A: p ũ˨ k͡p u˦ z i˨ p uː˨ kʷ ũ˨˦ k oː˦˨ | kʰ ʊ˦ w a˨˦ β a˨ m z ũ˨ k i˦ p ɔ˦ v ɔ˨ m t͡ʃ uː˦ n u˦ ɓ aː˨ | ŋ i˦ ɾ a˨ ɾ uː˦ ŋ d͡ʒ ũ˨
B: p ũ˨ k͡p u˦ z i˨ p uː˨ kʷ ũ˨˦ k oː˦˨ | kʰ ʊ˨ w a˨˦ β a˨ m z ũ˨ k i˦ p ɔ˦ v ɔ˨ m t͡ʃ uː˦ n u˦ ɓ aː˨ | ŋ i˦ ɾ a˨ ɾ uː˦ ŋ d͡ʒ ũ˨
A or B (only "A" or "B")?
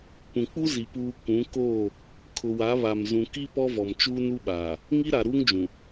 B